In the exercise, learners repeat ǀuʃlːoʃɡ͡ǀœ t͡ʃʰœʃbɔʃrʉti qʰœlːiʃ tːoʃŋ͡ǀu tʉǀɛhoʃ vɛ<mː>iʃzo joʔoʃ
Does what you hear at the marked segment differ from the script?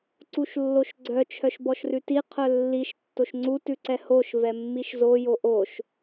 no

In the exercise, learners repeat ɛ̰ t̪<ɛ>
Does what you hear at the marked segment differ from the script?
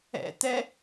no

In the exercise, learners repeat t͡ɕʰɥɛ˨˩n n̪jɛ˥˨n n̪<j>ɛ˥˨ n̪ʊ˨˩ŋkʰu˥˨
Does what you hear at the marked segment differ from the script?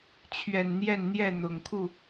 no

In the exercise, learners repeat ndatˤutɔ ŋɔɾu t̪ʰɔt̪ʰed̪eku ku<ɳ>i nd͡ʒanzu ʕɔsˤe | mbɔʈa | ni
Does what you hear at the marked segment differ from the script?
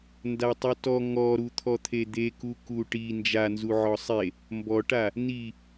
yes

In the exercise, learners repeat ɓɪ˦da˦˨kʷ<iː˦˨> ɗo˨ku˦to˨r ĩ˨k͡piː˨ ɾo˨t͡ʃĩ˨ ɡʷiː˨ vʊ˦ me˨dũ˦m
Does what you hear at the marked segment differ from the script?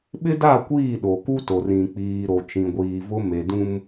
no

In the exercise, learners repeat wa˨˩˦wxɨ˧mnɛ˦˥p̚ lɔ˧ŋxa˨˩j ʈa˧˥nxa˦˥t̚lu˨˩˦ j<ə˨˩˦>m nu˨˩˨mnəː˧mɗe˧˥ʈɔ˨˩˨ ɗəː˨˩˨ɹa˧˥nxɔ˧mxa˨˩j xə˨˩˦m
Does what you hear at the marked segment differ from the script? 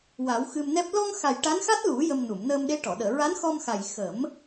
yes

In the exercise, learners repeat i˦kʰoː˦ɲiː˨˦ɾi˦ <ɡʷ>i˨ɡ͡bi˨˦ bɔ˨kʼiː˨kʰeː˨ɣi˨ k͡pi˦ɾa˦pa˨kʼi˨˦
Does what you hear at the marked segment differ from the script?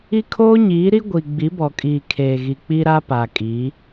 no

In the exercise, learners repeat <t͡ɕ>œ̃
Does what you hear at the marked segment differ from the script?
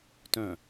yes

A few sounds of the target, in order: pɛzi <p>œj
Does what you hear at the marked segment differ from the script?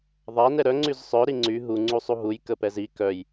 yes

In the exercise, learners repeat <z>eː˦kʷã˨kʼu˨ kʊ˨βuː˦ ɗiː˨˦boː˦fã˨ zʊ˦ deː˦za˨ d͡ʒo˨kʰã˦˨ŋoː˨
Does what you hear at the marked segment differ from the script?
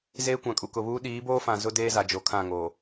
no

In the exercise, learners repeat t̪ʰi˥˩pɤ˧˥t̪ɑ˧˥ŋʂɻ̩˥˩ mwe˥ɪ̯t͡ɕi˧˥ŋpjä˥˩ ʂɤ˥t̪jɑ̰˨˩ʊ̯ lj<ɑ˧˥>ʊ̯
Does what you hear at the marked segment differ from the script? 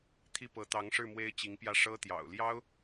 yes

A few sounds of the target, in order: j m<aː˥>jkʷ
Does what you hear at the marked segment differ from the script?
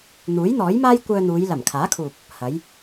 no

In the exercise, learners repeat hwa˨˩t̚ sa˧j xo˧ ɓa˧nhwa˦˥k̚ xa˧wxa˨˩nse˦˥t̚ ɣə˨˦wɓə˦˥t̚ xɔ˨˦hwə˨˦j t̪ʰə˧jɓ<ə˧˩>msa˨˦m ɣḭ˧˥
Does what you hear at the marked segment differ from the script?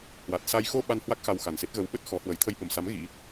no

